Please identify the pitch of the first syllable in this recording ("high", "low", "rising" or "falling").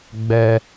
high